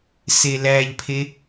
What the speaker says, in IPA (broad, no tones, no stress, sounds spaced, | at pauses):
s e l æ ʎ pʰ e